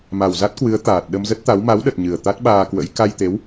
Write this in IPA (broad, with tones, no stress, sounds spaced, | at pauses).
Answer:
m a˨˩ w z a˦˥ t̚ k w ɨ˨˦ ə̯ t̪ aː˨˩ t̚ ɗ ə˧ m z ə˦˥ t̚ t̪ a˨˦ w m a˨˦ w ɗ ə˨˩ t̚ ɲ ɨ˨˩ ə̯ t̪ a˦˥ t̚ ɓ aː˧ k w ə̰˧˥ j k a˧ j t̪ e˨˦ w